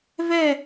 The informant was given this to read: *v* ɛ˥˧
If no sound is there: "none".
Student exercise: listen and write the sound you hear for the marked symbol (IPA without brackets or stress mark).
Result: v